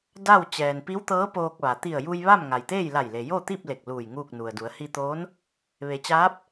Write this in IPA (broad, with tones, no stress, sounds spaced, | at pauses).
d a˥˨ w t͡ɕ ɛː˩ n p i˧˥ w t̪ ɤː˧˥ p oː˧ k̚ ʋ a˩ t̪ i˧˩ ə̯ j u˧ j ʋ a˥˨ m ŋ a˩ j t̪ eː˥˨ j l a˧˩ j l e˩ j o˥˨ t̪ i˥˨ p̚ l e˧˩ k̚ l uː˧˩ j ŋ uː˥˨ k̚ n u˩ ə̯ d u˩˧ ə̯ h i˧ t̪ oː˧˥ n | ʋ e˩˧ t͡ɕ aː˧˥ p̚